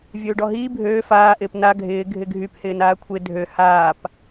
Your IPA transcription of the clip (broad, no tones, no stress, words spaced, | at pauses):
vʲøːɖɔɦiː bʱøː faː ʔɪːpna ɡʱɪː ɡʱɪɡʱyp hɪːnaːkʷʰɪ dʱø haːp